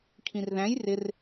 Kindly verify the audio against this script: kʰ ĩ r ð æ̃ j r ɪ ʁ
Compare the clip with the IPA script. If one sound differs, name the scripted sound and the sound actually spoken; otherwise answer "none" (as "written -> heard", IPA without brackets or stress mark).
ʁ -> r